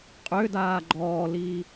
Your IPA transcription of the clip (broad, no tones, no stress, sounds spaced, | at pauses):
qʼ ø d aː ɡ͡ǃ ɔː l iː